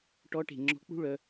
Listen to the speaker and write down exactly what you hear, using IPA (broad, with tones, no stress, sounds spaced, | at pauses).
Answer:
ʈ ɔ˧˥ ʈ e̤˩ ŋ͡ǁ ɔ̤˧˥ k͡p ṳ˥ ɭ œ˩˧